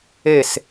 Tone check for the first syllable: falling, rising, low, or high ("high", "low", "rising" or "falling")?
falling